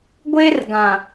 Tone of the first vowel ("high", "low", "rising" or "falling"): high